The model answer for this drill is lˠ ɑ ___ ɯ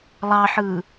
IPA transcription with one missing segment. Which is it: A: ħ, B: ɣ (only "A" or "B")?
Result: A